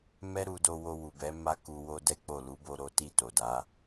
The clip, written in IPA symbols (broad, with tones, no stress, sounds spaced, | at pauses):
m ɛ˦ ɾ u˧ d o˧ w o˧ w u˨ b ɛ˨˦ m a˦ k u˧ w o˦ d ɛ˦ k͡p o˦˨ l u˨˦ b o˧ ɾ o˦ t i˦˨ t o˨ d a˨˦